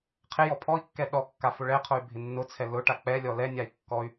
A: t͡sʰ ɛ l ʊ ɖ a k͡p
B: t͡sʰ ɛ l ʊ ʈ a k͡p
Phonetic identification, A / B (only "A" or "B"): B